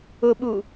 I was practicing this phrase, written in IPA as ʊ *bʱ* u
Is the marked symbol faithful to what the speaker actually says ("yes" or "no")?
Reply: no